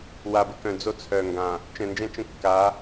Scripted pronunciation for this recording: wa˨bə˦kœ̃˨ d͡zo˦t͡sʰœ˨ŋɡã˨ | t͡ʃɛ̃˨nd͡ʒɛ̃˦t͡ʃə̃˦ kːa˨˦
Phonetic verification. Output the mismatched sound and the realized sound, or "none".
none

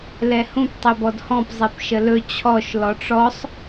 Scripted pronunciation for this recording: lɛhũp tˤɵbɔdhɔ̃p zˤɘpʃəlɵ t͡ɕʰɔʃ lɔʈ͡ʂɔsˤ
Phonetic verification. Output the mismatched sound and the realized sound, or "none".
ɘ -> e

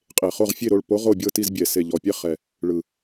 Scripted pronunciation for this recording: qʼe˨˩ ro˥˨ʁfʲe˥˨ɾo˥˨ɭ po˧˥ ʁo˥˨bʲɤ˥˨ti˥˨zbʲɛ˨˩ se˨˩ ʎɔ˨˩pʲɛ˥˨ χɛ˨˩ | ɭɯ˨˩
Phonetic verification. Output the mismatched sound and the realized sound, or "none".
r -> χ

